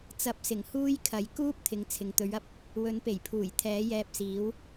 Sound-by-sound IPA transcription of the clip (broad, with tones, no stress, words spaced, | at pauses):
t͡sɐ˨˥p̚sɪ˨˩ŋ huː˥j kʰɐ˨˥j kuː˥p̚t̪ʰɪ˨ŋ t͡sʰɪ˨ŋt̪ɵ˨˥ɥɐ˥p̚ | wɵ˨˥npe˨˩jpʰuː˨˩j t̪ʰɛː˨˥jɛː˧p̚siː˨˥w